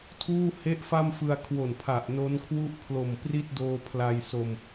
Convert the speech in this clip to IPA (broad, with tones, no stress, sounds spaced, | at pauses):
tʰ uː˥˩ h e˥˩ ʔ f a˥˩ m f ɯ˧ a̯ kʰ w o˨˩ n pʰ a˨˩ ʔ n o˦˥ n kʰ w u˥˩ ʔ pʰ l o˨˩ m p r i˥˩ t̚ d oː˧ pʰ l a˧ j s o˧ m